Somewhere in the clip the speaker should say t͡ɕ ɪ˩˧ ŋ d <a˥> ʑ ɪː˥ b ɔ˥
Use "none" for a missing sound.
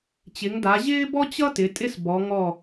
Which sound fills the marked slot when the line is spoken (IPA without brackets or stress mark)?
a˩˧